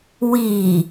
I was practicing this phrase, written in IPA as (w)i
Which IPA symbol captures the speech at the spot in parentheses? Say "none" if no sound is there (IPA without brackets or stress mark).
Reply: w